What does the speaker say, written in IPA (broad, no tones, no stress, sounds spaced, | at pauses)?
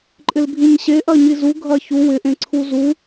ǃʼ ɪ l bʱ ĩ ɲ ɕ e ʔ ɐ ɲ i z u ɡʱ ɐ ç u w ɪ ʔ ẽ ǀʰ u z u